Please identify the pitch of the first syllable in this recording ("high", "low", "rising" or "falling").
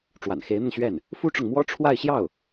low